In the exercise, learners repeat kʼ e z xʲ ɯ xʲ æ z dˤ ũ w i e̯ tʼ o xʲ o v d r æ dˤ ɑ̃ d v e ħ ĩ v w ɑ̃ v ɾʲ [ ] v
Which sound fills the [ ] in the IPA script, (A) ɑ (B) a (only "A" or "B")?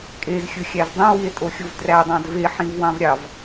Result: A